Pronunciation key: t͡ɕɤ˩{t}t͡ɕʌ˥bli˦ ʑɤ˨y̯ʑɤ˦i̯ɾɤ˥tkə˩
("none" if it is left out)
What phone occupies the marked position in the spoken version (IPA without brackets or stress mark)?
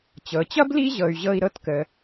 none